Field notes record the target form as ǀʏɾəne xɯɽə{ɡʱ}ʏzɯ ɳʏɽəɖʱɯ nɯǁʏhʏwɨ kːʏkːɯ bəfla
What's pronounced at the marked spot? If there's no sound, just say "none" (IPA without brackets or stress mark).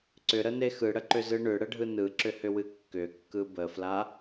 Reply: ǃ